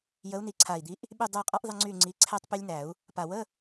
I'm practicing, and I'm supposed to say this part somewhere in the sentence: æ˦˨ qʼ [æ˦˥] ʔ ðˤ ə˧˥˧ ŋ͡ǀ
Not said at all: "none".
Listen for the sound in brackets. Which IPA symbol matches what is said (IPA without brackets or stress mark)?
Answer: a˦˥